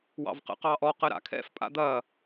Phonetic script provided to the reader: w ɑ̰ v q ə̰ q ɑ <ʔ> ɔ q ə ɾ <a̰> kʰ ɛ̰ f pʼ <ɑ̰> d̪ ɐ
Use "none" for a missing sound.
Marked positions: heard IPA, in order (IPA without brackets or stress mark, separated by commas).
ʔ, a̰, a̰